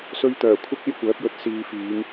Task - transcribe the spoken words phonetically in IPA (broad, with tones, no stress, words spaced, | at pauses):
sɵ˧ɥt̪œː˨˩ kʷʰɪ˥k̚ e˥jkʷœː˨˥p̚jɵ˧t̚ siː˨fiː˨˧ŋ